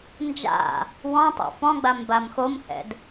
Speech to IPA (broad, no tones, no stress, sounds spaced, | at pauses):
n d͡ʒ a̰ | w ɔ̃ tˤ o̰ f ɔ̃ ɡ͡b a m b a m x o m h ɛ̰ d